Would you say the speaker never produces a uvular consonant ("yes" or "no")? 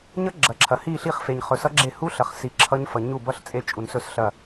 no